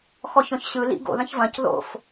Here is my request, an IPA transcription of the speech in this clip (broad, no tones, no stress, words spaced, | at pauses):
xɔçɔ̃çɕɯ lḭ ɡo̰ ðɐ̃çvɐ̃c ðo̰f